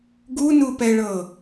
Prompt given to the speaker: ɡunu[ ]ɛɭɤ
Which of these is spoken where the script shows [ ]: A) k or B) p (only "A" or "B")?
B